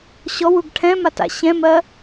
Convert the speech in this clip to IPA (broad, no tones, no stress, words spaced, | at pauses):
ɕɔwuɡ ʈʰɛ̃mata̰ ɕɛ̃mɜ